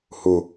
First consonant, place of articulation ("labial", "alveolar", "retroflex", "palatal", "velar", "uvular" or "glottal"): glottal